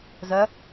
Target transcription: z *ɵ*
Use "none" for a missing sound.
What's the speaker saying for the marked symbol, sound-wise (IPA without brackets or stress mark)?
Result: œ